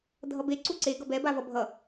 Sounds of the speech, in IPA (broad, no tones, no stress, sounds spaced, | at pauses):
dʱ ʌ b e ǀ u ǀ e ɡ ʌ b ɛ b a v ʌ bʱ ʌ